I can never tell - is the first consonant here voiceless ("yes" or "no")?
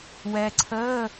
no